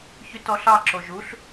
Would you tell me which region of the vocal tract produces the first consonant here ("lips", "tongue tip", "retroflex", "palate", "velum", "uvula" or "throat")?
palate